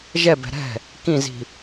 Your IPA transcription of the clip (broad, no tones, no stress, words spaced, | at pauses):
ʒɛbɛ̤ ɾɛ̤ | kĩzi̤